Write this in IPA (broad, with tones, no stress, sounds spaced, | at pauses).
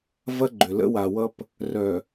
v ɐ˦ ɡ͡ǃ ʏ˨ l ə̰˦ w a˨ w ʌ˦ p | r œ˨